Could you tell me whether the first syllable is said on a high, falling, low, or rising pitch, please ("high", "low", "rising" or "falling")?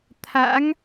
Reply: rising